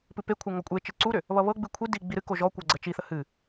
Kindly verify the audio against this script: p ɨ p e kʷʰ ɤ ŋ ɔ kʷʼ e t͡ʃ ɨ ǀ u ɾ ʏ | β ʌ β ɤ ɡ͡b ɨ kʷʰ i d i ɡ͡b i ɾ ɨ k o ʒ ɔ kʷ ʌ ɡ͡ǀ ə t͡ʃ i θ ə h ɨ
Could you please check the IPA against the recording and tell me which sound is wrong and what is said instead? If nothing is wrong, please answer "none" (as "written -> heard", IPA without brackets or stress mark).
none